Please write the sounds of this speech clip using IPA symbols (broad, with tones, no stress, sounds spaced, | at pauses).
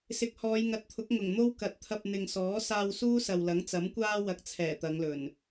s ɪ˨ k̚ h ɔː˨˧ j ŋ ɐ˨ t̚ t̪ʰ ʊ˨˥ k̚ ŋ ʊ˨˩ ŋ n̪ o˥ w k ɐ˨˥ t̚ t̪ʰ ɐ˧ p̚ n̪ ɪ˨ ŋ s ɔː˨˥ s aː˧ w s uː˥ s ɐ˨ w l ɐ˨˥ ŋ t͡s ɐ˨˥ m kʷ aː˥ w ɐ˨˥ k̚ t͡sʰ ɛː˨˩ t̪ ɐ˨˧ ŋ l ɵ˨˩ n